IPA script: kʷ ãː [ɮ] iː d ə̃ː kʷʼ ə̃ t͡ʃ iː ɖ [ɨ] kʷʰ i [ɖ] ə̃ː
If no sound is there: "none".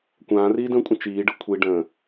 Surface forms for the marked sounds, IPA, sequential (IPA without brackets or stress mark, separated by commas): r, ɨ, ɖ